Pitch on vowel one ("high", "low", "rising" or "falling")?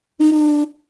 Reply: high